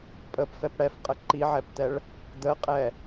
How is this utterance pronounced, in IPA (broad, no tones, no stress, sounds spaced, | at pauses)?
pʼ ə p f ɛ p ɽ ɛ f qʼ ə ǃ i ʕ ɛ p t̪ ɛ ɭ | d̪ ə qʼ ɛ